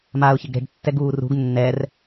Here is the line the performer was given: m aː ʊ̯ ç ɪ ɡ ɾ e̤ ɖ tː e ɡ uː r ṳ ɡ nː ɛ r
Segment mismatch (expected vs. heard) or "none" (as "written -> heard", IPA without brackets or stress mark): e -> ɛ